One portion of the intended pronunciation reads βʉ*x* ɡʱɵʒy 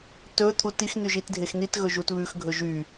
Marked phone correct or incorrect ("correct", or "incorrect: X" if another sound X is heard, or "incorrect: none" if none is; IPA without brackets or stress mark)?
correct